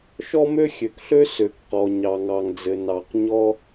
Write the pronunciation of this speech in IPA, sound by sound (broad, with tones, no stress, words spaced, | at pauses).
ʃɔ˥mø˥xʲø˩kɬø˥ sø˩kqɔ˩ ɲɑ˩ŋɑ˩ŋd͡zɘ˩ nɑ˩qɲɔ˥